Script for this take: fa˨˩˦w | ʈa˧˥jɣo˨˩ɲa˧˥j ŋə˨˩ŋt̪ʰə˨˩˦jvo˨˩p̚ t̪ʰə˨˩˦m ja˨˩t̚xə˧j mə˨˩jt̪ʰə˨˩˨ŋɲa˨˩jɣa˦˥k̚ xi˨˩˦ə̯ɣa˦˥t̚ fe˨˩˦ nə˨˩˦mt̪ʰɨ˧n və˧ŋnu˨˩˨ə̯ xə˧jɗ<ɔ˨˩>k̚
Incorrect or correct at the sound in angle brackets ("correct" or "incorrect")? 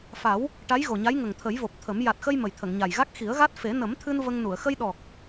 correct